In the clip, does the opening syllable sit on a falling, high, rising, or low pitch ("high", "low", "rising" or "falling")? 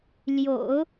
low